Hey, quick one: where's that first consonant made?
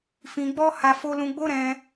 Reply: lips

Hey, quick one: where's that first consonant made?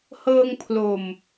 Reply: throat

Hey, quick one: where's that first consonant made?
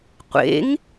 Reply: uvula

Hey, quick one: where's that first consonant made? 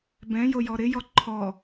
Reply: lips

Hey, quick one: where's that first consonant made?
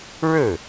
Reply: retroflex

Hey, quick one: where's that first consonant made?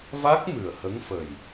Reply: lips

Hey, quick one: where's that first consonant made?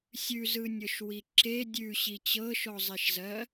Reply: tongue tip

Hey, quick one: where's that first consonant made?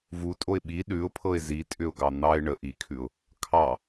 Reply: lips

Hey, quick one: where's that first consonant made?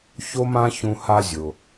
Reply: palate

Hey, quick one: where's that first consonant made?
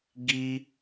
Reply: velum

